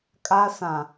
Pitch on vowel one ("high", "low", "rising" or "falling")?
high